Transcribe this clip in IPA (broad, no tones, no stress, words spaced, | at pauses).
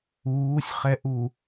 uːsʲχɛʔu